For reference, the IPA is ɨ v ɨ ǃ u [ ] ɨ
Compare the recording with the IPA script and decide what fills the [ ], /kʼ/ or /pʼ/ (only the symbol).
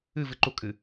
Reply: kʼ